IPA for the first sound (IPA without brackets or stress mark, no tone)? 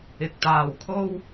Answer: ɪ